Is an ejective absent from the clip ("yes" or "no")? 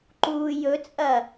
no